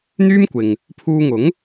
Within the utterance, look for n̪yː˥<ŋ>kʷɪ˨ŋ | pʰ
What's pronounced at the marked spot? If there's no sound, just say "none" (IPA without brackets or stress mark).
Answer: m